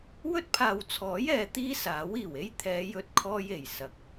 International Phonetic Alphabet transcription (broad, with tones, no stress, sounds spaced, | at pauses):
w ɵ˥ t̚ pʰ aː˨ w t͡sʰ ɔː˨˥ j ɛː˨˧ t̪ iː˥ s aː˨˥ w iː˨˩ w e˥ j t̪ʰ ɛː˨˧ j ɵ˧ t̚ kʰ ɔː˧ j e˨˩ j s ɐ˨˥ k̚